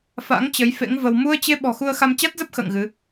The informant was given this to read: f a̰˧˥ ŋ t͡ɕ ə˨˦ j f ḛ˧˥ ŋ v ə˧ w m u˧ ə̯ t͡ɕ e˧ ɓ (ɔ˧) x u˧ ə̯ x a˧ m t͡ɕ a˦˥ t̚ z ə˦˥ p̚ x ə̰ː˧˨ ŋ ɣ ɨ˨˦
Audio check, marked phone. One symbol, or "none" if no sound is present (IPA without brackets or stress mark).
ɔ̤˨˩